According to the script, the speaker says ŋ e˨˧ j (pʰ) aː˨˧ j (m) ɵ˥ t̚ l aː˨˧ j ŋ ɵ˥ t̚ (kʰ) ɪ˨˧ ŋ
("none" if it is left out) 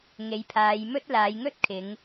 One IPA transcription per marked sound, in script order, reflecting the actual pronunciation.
pʰ, m, kʰ

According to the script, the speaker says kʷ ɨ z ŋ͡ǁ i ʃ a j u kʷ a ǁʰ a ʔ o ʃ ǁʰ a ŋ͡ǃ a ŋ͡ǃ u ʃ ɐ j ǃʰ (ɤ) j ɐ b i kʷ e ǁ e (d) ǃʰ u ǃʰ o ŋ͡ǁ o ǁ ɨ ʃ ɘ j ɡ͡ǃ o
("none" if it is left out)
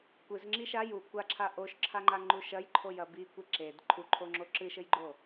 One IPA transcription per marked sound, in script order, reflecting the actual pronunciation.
o, d

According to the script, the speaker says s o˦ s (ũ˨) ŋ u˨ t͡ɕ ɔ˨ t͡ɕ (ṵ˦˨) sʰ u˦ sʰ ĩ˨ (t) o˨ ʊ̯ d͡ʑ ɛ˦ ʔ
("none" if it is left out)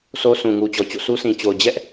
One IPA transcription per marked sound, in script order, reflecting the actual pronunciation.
ũ˨, o̰˦˨, t͡ɕ

